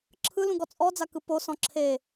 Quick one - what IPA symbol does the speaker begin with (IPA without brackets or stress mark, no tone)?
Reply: ǁʰ